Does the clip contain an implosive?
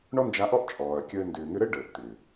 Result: no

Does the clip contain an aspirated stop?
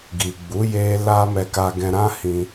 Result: no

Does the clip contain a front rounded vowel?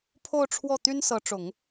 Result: yes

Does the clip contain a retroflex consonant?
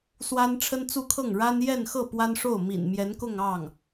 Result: yes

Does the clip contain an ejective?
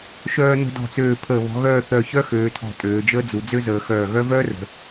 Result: yes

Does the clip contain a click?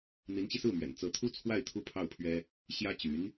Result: no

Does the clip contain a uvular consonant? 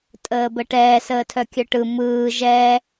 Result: no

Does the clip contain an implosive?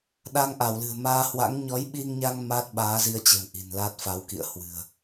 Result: yes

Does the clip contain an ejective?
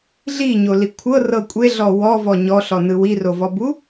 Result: yes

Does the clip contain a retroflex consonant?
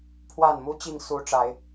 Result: yes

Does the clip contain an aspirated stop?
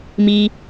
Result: no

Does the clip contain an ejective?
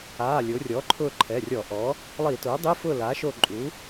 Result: yes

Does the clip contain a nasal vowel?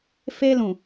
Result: yes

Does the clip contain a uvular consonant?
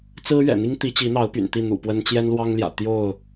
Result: no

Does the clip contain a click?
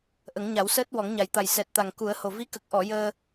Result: no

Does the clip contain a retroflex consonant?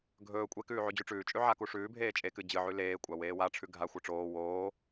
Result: yes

